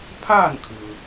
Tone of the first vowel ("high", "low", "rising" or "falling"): falling